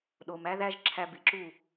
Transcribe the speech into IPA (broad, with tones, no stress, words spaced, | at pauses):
ɗo˨m æ˦ ðæ˦ʒǁʰæ˧bi˨ǁu˦˨